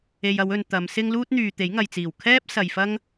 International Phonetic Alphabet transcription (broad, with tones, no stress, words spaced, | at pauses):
e˨jɐ˨˧wɵ˨n t̪ɐ˨˧msɪ˥ŋ luː˥t̚n̪yː˨ t̪e˨˥jŋɐ˨jt͡siː˨˩w kʰɛː˥p̚ sɐ˨jfɐ˥ŋ